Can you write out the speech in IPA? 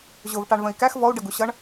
ʑ ʊ v ʈ ɑ ɳ v ə̃ i̯ k æ x v ɔ u̯ ɖ ə ɡ u ɕ ʌ ɳ

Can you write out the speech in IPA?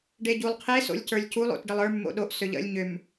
ɖ e ɟ u lˠ qʰ e s o̰ lʲ c ə˞ lʲ c u lˠ o̰ t ɖ ə lˠ ə˞ mː o̰ ɗ o ʔ s ø ʎ ə̰ lʲ ɲ ʏ m

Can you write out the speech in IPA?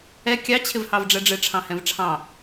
ɛ kʲ ɑ t͡ɕʰ ɪ v h ɑ v ɖ͡ʐ ɛ ɖ͡ʐ ɪ ʈ͡ʂʰ ɑ̃ h ɛ̃ v ʈ͡ʂʰ ɑ̃

